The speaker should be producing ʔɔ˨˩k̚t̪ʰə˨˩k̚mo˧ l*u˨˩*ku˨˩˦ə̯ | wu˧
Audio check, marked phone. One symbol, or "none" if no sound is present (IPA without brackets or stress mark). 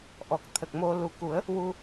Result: u˨˩